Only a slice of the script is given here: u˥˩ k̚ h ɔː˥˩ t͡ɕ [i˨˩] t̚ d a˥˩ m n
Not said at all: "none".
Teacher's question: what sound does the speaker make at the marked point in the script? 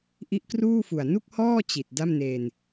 i˨˩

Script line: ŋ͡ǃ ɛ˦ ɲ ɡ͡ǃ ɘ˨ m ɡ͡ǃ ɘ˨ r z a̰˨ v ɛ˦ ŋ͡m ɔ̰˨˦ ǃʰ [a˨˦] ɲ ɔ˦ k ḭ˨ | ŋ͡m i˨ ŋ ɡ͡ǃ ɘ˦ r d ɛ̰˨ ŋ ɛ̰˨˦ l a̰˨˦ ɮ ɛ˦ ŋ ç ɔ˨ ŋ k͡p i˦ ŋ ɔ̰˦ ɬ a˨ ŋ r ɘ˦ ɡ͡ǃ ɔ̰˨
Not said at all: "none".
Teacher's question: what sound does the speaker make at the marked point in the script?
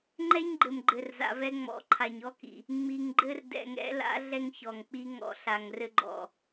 a˨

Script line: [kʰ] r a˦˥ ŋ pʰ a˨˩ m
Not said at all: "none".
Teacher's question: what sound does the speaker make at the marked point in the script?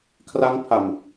kʰ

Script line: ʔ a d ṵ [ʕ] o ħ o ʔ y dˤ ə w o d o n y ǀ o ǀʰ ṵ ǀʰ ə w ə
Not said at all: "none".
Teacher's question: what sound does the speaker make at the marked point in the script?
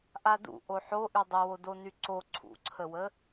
ʔ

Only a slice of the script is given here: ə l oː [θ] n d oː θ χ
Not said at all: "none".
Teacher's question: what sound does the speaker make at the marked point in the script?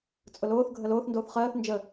θ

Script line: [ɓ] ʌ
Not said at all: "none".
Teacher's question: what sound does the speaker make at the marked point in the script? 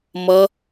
m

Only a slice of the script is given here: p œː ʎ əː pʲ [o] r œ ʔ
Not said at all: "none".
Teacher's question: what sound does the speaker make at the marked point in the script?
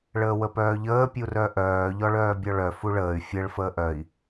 u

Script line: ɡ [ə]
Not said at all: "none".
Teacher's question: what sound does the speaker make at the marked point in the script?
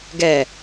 ɛ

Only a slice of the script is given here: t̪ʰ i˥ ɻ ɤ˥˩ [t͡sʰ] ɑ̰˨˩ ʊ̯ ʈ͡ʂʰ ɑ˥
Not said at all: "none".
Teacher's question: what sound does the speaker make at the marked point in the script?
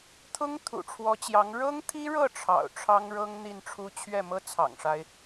ʈ͡ʂʰ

